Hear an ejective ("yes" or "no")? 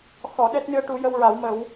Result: no